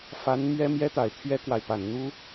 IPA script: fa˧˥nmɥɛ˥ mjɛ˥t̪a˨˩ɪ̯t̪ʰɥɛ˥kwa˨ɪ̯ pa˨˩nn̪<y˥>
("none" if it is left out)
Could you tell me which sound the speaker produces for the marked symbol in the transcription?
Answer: u˥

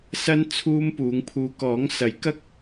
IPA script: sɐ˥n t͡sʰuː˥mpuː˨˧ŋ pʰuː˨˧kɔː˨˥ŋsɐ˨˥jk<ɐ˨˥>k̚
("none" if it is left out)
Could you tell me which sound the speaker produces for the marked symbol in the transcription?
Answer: ɐ˥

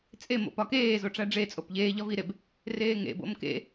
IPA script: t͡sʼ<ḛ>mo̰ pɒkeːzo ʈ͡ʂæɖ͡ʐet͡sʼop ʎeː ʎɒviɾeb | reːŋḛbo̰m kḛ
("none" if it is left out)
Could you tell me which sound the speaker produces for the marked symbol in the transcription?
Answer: e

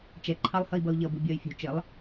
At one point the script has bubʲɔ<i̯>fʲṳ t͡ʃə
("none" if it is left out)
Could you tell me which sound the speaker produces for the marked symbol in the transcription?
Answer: y̯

